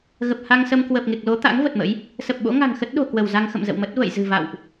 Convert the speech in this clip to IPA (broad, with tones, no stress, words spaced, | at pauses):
ɣə˨˩p̚ha˧ŋsə˧m kwə˨˩p̚ŋe˨˩k̚lo˨˦t̪a̰˧˥ŋ və˨˩t̚mə̰˧˥j | sə˨˩p̚ɓo̰˧˥ ŋa̤˨˩ŋxə˦˥t̚ɗo̤˨˩ kwə˧˩wza˧ŋ xə̰˧˨mzə̰˧˨wmə˦˥t̚ və̰˧˨j zɨ̤˨˩va̰˧˨wʔ